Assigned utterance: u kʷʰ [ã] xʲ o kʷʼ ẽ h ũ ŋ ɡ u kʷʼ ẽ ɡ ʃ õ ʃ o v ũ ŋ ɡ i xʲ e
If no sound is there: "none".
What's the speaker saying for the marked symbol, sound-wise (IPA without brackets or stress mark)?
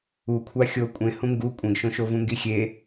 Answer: a